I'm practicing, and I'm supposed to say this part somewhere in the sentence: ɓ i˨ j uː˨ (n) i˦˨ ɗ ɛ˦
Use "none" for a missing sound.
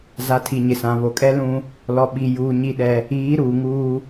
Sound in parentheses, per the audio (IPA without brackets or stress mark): ɲ